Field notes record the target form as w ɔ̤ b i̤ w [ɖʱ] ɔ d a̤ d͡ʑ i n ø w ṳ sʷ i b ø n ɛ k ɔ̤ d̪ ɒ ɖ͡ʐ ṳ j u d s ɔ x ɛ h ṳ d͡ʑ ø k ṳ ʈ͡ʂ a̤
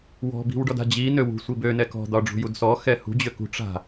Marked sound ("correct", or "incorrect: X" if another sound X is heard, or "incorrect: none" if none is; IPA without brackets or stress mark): incorrect: ɖ